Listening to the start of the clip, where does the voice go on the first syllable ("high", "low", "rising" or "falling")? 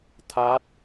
rising